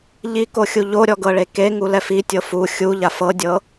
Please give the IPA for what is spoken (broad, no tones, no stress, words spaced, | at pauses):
ʎikoxʲu ʎoɾʲɔɡɤɭe keŋulɛf itʲɤ fu xʲuʎaf ɤdʲɤ